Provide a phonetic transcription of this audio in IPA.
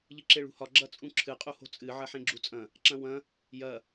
ʎ ɨ ǁ e ɭ ṳ h ɒ ɡ͡ǁ ɐ t͡sʼ ũ ǁʰ ɨ qʼ u h o̤ t͡sʼ ɨ ʕ ɐ ħ ẽ ɡ͡ǁ u t͡sʼ ɐ̃ | ǁ ɐ̃ w ɐ̃ | j ɐ

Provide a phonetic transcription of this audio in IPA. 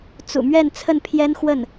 t͡s ṵ˨˩ m ɥ ɛ˥˧ n t͡sʰ ə˥˩ n pʰ j ɛ˥ n x w ə˥˩ n

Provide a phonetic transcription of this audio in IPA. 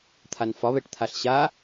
t̪ʰ a n f ɒ β ɛ ʈ t̪ʰ a ɬ ɕ a

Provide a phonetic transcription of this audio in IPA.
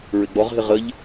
ɹ ɪ ɡ͡b ɔ ʁ ɦ ɪ ʁ ə ʎ

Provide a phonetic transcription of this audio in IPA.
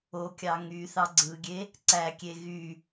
o kʲ ɑ ŋ y θ ɑ ɡ͡ǀ ɯ ɡʲ e | ǀ æ kʲ e ɣ y

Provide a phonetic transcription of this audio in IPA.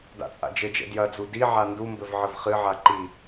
d a̰ t͡sʼ a̰ d͡ʒ ɘ d͡ʒ ɛ̰ d j ɐ d͡z u d i ʕ a n d u m b ɘ v ʕ ɘ v χ ɨ ʕ a ǃ i

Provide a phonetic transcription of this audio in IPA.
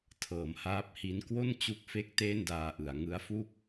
tʰ ɤː˩˦ m h aː˦˥ p̚ h i˦˥ n k w o˥˩ n t͡ɕ u˦˥ k̚ f e˦˥ k̚ t eː˥˩ n d aː˧ ʔ ɯ˩˦ a̯ ŋ ɯ˦˥ a̯ f u˥˩ k̚

